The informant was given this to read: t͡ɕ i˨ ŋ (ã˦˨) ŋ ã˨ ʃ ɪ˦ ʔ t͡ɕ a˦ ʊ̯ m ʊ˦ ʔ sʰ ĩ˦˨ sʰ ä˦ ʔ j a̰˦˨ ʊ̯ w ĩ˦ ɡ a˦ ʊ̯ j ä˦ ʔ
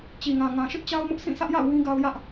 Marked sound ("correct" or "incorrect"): incorrect